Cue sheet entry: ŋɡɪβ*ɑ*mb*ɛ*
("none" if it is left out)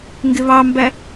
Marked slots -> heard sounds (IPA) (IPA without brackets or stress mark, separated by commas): ɑ, æ